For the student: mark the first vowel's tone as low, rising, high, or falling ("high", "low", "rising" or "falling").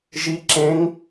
rising